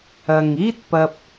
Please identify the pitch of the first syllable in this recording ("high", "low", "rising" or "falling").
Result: low